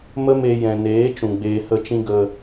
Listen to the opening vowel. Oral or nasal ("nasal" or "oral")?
oral